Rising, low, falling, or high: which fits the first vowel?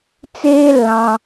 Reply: high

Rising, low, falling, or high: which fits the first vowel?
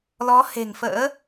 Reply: rising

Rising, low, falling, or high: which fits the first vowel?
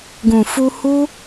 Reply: low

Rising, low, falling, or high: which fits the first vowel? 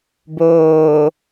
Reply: low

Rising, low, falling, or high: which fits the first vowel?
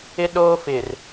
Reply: high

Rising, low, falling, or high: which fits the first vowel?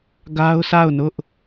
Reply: high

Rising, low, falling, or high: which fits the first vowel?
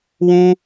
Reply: high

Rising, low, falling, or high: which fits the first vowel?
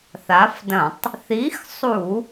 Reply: rising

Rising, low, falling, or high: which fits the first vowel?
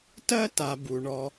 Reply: high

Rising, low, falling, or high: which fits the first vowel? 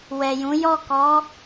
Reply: low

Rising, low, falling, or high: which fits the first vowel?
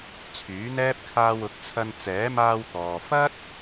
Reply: rising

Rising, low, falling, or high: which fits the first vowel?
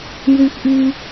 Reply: high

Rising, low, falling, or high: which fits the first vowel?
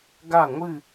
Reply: falling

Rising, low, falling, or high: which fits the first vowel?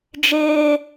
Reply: high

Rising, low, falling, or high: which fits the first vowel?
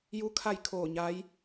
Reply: rising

